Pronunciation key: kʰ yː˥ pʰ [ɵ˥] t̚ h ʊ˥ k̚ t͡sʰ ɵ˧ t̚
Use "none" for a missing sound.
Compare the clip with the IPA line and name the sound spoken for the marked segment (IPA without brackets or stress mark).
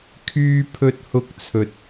ɵ˥